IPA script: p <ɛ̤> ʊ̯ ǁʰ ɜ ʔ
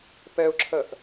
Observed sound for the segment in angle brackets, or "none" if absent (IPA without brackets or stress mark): ɛ